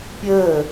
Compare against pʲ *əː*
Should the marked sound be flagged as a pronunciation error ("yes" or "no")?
no